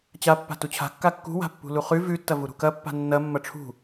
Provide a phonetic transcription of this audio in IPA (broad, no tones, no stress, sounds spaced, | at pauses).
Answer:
t͡ɕ a pː a̤ t u t͡ɕʰ a̤ kː a kː ṳ w a̤ pː ṳ l u χ ʉ v ʉ tː ɐ v u ɾ ṳ k ɐ pː a̤ nː ɐ mː ɐ ʈ͡ʂʰ ṳ